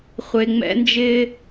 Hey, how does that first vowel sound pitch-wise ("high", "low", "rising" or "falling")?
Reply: low